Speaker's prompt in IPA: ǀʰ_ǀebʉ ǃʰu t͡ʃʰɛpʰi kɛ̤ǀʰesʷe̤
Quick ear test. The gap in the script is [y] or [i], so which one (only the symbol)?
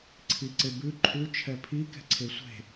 i